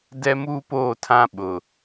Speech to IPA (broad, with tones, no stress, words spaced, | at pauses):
dɛ˦muː˦poː˦˨tʰã˦ ɓʊ˨